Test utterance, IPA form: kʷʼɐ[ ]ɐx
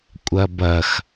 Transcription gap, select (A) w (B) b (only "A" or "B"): B